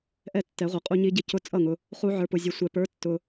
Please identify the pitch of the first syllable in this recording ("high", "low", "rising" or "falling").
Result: falling